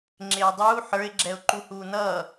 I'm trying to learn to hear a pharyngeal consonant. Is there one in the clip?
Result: yes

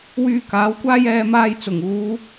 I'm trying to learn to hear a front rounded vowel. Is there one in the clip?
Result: yes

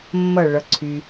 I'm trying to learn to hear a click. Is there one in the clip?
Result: yes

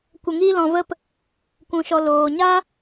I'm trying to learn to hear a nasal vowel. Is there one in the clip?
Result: yes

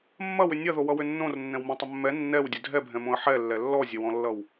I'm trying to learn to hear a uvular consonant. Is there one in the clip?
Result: no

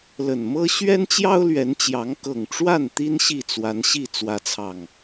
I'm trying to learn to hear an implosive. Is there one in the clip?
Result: no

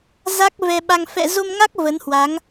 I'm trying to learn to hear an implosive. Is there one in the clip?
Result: yes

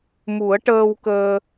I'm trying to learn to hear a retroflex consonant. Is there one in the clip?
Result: yes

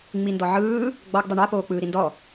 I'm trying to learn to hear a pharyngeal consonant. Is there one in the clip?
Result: yes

